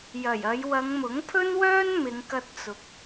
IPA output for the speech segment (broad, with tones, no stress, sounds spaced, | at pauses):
j ɐ˨˩ j ɐ˨˧ j w ɐ˨˧ ŋ m ʊ˨˥ ŋ pʰ ɵ˥ n w œː˥ n m ɪ˨˧ ŋ k ɐ˧ t̚ t͡s ʊ˨ k̚